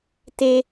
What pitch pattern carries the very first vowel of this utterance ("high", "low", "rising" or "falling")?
high